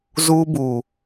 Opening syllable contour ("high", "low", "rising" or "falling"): high